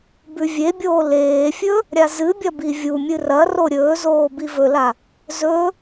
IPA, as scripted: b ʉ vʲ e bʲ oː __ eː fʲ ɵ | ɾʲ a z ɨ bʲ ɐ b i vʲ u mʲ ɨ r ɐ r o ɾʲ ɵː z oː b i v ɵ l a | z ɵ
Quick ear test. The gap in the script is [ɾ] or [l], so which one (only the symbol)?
l